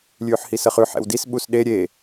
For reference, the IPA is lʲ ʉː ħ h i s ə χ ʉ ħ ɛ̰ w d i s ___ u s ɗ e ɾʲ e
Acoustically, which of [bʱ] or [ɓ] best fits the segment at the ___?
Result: ɓ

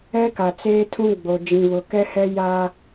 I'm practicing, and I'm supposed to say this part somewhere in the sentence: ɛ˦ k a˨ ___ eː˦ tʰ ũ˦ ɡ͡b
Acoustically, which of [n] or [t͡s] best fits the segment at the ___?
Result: t͡s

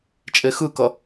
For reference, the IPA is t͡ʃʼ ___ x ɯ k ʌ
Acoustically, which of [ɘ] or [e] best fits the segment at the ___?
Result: e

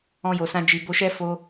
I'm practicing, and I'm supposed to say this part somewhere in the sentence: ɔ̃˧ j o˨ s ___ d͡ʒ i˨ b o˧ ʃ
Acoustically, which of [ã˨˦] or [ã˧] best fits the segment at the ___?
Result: ã˧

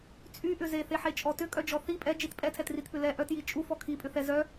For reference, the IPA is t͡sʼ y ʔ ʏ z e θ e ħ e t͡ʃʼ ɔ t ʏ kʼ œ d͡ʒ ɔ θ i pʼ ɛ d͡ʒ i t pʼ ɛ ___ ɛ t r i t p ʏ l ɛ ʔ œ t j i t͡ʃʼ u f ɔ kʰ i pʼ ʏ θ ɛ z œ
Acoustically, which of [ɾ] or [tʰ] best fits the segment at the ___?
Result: tʰ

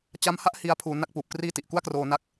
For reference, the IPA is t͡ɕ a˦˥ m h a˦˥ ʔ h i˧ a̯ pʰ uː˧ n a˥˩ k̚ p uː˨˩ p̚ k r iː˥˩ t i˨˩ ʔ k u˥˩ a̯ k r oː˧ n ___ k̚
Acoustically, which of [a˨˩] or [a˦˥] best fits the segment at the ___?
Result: a˦˥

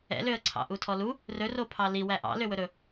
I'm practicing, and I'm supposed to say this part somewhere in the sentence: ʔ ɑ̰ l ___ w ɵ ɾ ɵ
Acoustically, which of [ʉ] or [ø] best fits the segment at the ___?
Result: ø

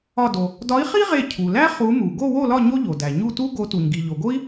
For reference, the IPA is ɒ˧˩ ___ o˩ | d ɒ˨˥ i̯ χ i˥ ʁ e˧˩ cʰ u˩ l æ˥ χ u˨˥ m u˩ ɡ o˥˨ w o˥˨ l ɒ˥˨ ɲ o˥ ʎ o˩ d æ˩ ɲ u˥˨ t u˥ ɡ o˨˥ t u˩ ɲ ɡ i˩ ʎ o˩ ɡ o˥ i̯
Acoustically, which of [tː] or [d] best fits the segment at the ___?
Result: d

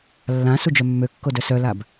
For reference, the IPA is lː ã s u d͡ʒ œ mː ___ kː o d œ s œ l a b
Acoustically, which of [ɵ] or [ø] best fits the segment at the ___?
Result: ø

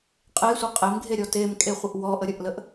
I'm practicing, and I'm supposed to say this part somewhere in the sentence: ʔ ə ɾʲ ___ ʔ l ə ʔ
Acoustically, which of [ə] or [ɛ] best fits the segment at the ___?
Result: ə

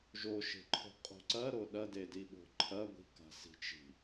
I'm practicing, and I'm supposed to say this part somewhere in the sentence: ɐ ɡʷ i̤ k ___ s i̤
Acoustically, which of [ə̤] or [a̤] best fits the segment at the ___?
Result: a̤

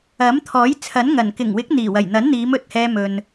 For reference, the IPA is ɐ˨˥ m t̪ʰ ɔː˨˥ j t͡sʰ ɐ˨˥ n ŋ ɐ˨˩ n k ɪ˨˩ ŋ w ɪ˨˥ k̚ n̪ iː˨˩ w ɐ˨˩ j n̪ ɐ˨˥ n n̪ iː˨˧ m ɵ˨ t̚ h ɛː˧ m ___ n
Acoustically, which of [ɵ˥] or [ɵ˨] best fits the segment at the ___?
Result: ɵ˨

